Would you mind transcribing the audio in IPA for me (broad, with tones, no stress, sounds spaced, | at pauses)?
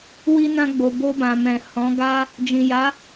w i˧ n ã˧ ɡ͡b o˨ b o˧ b ã˨ m ɛ̃˨ h ɔ̃˨˦ ɡ a˦ | d͡ʒ ĩ˨ j a˨˦